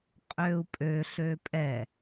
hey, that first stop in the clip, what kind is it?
ejective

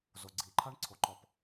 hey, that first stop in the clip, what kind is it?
click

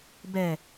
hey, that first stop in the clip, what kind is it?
plain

